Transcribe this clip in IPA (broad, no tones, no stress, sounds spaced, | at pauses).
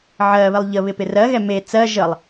ʕ ɜ β ɪ lˠ ʎ ə β ɪ p ɪ r ɜ ɣ ɛ m e t͡s ɜ ʒ ə lˠ